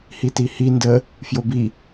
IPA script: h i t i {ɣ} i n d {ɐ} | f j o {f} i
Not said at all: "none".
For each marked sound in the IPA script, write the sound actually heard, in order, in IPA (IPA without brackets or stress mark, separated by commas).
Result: h, ə, b